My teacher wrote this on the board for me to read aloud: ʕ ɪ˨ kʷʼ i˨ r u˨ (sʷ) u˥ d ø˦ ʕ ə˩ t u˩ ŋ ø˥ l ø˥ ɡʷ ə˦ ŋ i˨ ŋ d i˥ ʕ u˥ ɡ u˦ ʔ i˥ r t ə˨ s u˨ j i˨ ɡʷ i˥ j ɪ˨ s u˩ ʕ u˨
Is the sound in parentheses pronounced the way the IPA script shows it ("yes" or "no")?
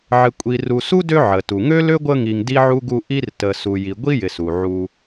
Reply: no